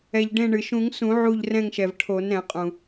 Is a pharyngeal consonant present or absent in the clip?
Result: present